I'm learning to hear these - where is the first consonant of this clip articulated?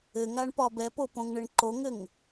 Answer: velum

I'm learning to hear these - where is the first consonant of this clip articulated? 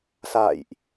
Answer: tongue tip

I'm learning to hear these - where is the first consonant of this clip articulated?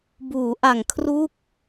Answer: lips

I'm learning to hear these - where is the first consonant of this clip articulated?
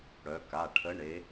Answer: retroflex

